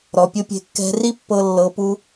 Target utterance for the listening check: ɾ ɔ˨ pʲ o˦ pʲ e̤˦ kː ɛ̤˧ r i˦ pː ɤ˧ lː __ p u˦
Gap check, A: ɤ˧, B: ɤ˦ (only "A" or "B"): A